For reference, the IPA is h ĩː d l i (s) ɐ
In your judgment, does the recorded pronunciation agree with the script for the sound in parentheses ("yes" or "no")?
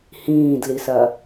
yes